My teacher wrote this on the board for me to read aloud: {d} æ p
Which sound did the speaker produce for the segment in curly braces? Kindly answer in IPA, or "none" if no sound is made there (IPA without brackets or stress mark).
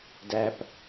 d